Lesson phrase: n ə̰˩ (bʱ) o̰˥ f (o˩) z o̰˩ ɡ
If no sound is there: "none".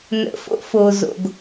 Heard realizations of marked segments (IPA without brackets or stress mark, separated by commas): f, o˩